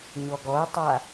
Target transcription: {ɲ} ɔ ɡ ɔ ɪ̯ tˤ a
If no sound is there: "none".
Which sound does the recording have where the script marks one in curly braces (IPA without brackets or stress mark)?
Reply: ɲ